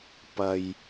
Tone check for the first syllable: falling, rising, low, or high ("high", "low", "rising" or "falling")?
low